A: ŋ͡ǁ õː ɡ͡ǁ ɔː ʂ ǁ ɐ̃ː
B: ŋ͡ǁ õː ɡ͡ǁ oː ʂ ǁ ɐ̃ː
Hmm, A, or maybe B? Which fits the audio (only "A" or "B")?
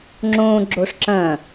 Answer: B